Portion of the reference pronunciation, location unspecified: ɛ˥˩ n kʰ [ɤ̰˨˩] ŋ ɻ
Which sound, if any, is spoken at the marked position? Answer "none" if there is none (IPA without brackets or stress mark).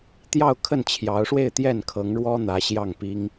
ɤ˧˥